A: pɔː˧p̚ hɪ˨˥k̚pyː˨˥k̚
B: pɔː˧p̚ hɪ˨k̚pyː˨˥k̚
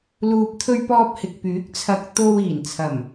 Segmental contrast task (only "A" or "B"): B